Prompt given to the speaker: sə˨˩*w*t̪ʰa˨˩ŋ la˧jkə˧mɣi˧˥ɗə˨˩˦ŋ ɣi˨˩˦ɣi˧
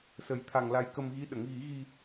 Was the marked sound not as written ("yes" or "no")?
yes